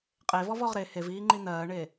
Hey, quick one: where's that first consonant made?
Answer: uvula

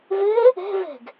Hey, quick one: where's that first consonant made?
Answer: lips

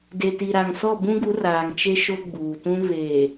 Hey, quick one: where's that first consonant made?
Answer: tongue tip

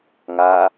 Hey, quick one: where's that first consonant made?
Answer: velum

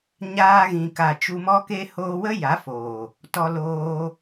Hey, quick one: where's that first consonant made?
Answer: palate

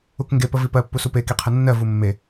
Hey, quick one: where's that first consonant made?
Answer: velum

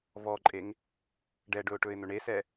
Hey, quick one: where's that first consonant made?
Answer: lips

